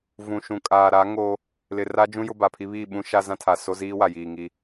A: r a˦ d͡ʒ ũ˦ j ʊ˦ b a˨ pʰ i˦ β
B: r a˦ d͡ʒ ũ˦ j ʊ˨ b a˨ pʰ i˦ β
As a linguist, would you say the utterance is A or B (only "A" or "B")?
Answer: A